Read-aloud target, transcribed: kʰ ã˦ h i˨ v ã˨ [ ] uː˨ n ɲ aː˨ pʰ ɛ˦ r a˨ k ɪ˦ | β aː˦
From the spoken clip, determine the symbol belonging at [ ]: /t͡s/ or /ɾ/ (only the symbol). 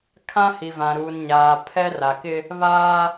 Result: ɾ